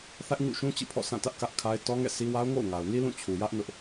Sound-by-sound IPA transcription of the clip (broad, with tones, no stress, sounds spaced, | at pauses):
θ ä˦ ʔ ɲ ṵ˦˨ ʃ ũ˦ t͡ɕ ḭ˦˨ pʰ ɔ̰˦˨ s ã˦˨ t ä˦ ʔ k ä˦ ʔ kʰ a˦ ɪ̯ t ɔ˦ ŋ ɛ̰˦˨ s i˦ w a˦ ʊ̯ ŋ o̰˦˨ ʊ̯ ŋ a˨ ʊ̯ n i˦ l ũ˦˨ t͡ɕʰ u˨ j ä˦ ʔ n ʊ˦ ʔ